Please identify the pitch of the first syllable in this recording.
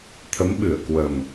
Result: rising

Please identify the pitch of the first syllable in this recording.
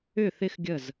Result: falling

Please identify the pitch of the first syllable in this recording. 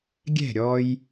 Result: falling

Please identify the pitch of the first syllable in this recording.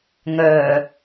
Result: low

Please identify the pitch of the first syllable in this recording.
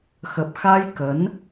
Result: low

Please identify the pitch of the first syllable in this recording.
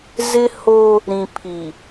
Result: high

